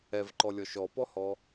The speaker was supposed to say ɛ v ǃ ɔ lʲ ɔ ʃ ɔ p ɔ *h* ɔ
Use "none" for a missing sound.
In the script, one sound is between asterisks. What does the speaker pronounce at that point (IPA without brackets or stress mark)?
h